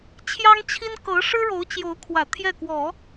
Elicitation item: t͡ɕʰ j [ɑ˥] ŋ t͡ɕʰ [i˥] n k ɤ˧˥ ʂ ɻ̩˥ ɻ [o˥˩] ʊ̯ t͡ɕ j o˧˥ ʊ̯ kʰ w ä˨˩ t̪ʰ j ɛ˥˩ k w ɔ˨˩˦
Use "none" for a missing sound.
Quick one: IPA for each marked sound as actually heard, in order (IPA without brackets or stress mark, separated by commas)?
ɑ˥, i˥, o˧˥